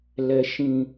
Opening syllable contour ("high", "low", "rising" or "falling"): high